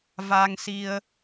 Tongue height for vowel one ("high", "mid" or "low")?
low